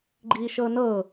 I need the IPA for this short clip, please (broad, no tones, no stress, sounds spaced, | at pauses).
ɡ͡ǃ iː ʃ ɤ n ɤ